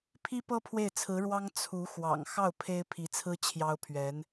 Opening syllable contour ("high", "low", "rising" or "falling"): high